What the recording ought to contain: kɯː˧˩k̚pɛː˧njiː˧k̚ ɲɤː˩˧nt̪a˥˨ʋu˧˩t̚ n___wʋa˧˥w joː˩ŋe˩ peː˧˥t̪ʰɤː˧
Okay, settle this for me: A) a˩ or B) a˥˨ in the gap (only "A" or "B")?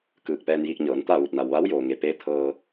A